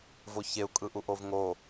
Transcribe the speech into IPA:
v o ç e u̯ kʼ ɯ ʔ u ʔ o v ŋ o

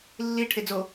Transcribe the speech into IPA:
lː i ʈʰ e d͡z o

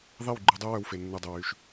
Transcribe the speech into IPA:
ðˤ i˦˨ w ɡ͡ǃ u˧ dˤ u˦ w œ˧ w f e˨ nː u˨ dˤ ø˨ w y˨ ʃ

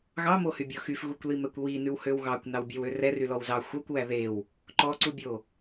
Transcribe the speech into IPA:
ɣ ɑ m o h y bʲ ɔ x y f ɣ u kʷ l i m ɛ kʷ w i n ʉ w h ø w ɣ ɑ kʷ n ɑ w bʲ ɛ w ø r ɛ r y l ɔ w z ɑ xʷ ɑ kʷ w æ ð e w | ǃ ɔ ǀ u bʲ o

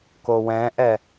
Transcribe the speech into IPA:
k o w ɛ̃ ʔ ɛ

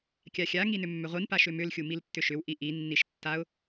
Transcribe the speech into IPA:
kʲ a xʲ a ŋ i n ʏ mː ʏ ʁʷ i n p a ʃ ʏ m ʏ l xʲ u m i l tː ʏ ʃ ʏ w ʔ i ʔ i nː i ʃ tː a ʊ̯

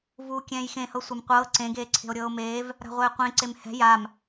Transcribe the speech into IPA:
v uː kʲ ɛ̃ː j x ẽ h ɤ sʷ a m qʷ ɤː ǀ ẽ ɡ eː ǀʰ e̤ o̯ ɾʲ ɤː o̯ m eː v | ɾ a̤ ʁʷ eː qʷ ẽ ǀ e m h ɛ̤ j a m

